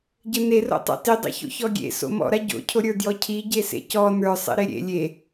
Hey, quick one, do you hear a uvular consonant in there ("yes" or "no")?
no